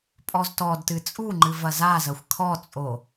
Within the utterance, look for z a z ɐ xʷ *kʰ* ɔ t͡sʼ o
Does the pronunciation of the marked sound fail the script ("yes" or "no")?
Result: no